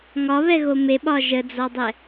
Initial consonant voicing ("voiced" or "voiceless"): voiced